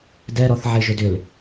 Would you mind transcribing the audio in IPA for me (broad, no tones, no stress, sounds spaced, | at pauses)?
d ɛ ɾ ɔ θ ʕ e ʒ ʏ d ʏ l